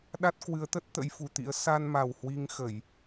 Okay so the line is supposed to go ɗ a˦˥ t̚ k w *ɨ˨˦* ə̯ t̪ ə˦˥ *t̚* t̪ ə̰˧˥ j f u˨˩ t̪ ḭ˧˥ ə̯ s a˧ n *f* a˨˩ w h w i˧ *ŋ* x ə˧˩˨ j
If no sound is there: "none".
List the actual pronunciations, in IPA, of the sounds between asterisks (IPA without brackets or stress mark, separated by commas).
ɨ˨˦, t̚, m, ŋ